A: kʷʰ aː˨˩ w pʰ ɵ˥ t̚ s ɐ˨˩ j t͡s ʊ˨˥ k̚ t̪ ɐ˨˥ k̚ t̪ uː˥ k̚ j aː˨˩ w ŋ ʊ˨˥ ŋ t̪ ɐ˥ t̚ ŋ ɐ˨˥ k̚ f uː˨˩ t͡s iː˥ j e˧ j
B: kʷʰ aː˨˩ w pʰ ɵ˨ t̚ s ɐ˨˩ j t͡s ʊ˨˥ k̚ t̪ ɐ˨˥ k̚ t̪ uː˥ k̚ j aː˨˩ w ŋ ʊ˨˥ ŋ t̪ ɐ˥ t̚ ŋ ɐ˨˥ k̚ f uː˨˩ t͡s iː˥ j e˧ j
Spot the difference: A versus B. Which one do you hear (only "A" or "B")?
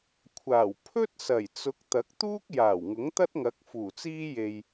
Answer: A